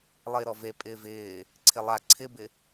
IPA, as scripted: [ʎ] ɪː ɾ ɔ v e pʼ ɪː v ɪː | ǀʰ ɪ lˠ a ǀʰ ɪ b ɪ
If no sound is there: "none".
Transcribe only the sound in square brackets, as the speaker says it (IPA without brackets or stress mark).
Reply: lˠ